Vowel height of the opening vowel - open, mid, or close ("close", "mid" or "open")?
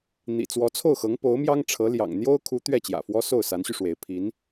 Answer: close